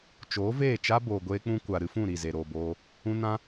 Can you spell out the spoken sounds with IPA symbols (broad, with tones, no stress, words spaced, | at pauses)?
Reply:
t͡ʃoː˨˦veː˦˨t͡ʃa˦ boː˨ɡʷeː˦k͡pũ˦kʷa˨ ɾɨ˧fũ˦˨ ɾi˦˨ze˨ɾoː˨boː˧ | ũ˦ nã˦